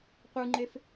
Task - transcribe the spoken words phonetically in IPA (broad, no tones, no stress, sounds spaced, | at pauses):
qʷ ɯ ŋ͡ǃ e f